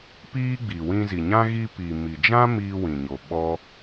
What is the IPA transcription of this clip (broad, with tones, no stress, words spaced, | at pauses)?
piː˦ɡ͡bi˨ wĩ˧zi˨ɲã˦ ɣi˧pi˨ mi˨d͡ʒã˦ miː˧wĩ˨ɲo˨ ɓɔ˦